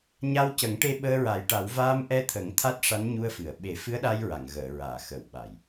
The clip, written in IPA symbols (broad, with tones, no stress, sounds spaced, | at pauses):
ɲ a˧ w c ə˨˩˦ ŋ ʈ e˧ ɓ əː˧ ɹ a˨˩˦ j ʈ a˨˩˦ w v aː˧ m ʔ ɛ˧ t̪ʰ ə˨˩˦ ŋ t̪ʰ a˦˥ t̚ ʂ a˧˥ n ɲ u˧ ə̯ f ɨ˨˩˨ ə̯ ɓ e˨˩˦ f ɨ˧˥ ə̯ ɗ a˧ j ɹ a˨˩˨ ŋ ɣ əː˨˩˨ ɹ aː˨˩˨ x ə˨˩˨ w ɓ a˨˩˨ j